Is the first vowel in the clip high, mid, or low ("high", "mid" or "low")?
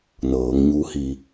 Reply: mid